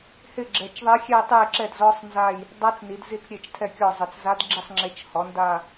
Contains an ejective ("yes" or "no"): no